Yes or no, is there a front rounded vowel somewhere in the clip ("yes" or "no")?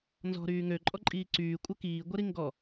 yes